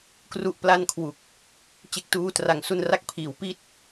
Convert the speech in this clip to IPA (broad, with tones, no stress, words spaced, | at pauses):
kru˥˩ʔpla˥˩n kʰwu˨˩k̚ | t͡ɕe˦˥k̚tuː˦˥ tra˨˩ŋsu˧n ra˦˥k̚pʰiː˩˦wpi˥˩t̚